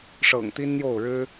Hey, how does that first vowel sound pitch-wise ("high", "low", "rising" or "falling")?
low